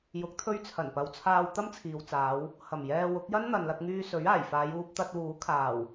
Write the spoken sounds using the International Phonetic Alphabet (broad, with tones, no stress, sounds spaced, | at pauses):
j ʊ˨˥ k̚ t̪ʰ ɵ˧ ɥ t͡sʰ ɐ˨˩ n p ɐ˨˧ w t͡sʰ aː˧ w t̪ ɐ˥ m t͡sʰ iː˨ w t͡s aː˨˧ w | h ɐ˨˩ m j ɛː˧ w ʊ˨˥ k̚ j ɐ˥ n n̪ ɐ˨ n l ɐ˧ k̚ ŋ yː˧ s ɵ˨˥ ɥ aː˨˩ j f aː˨˧ j uː˧ p̚ t̪ ɐ˧ t̚ w uː˨˥ kʰ aː˨˩ w